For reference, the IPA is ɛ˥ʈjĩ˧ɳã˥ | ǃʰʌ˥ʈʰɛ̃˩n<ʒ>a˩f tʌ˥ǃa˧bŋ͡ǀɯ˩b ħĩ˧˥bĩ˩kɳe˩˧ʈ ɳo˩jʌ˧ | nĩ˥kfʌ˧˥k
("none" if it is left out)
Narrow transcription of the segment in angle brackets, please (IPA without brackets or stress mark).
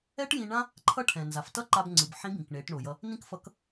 z